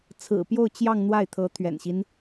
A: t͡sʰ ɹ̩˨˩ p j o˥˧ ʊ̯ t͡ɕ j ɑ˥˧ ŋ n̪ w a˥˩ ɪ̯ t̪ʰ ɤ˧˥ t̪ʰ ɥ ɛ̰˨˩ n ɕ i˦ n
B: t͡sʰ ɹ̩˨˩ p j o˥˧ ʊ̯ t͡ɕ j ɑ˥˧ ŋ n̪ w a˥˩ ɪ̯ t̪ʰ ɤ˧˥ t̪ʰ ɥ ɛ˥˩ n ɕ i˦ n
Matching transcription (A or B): A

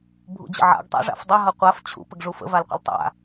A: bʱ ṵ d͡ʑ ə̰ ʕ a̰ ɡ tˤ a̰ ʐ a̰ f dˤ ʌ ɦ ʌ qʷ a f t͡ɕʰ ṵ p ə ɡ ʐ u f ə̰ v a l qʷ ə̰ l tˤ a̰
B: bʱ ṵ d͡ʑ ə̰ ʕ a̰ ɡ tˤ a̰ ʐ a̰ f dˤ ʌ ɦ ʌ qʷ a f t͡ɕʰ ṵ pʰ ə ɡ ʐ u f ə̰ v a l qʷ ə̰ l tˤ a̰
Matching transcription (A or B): A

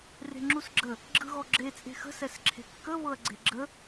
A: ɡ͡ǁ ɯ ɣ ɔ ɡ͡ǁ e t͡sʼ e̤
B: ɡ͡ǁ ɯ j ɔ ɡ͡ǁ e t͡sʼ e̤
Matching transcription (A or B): A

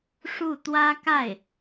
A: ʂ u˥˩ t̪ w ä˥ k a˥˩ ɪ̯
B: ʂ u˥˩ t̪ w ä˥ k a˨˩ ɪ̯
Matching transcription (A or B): A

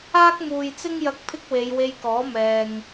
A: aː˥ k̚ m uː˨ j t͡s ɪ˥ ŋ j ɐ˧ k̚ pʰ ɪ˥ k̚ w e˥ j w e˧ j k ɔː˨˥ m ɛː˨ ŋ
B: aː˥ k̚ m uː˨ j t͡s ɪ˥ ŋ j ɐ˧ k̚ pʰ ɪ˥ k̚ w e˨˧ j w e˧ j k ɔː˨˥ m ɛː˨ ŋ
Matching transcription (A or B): B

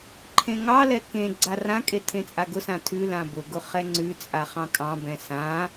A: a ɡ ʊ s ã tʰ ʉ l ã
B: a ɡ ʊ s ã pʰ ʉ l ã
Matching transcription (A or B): A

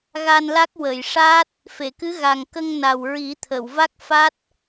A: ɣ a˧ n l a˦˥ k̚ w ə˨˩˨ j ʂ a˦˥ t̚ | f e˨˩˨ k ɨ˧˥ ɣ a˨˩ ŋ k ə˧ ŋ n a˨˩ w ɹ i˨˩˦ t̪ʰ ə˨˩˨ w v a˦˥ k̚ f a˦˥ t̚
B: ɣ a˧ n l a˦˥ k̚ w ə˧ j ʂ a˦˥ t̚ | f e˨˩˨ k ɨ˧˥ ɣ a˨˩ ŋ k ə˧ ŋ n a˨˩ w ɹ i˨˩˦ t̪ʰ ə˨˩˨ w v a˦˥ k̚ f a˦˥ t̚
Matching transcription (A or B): A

